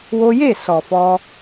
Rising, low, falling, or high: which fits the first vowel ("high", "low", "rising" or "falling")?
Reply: high